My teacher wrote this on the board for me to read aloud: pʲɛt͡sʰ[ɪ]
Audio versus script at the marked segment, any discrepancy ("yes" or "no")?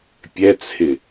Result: no